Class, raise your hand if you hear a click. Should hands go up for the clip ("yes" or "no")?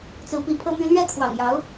no